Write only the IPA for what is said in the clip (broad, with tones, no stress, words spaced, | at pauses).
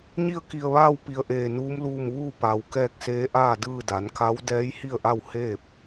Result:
ɲi˥˨ə̯ki˧˩ə̯ʋaː˥˨w pi˧ə̯ʔeː˧˩nuː˧˥mluː˥˨m ʋuː˥˨ pa˩w kɛː˥˨k̚seː˧˥ʔaː˥˨dɯː˥˨ da˩˧nka˧˥w dɛː˧˥jhi˥˨ə̯ʔa˥˨w heː˥˨p̚